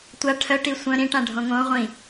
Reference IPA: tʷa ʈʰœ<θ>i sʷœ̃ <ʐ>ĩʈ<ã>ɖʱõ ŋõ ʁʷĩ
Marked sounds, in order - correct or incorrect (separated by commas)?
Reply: incorrect, incorrect, correct